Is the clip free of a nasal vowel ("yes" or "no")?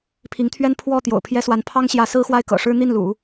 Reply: yes